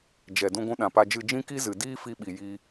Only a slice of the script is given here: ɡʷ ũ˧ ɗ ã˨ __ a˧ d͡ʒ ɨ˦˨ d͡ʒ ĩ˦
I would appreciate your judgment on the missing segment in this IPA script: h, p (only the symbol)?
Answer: p